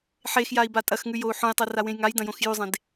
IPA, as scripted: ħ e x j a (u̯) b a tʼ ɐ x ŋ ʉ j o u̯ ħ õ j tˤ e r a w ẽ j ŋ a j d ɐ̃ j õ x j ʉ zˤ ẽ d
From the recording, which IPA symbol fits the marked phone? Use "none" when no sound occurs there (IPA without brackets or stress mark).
i̯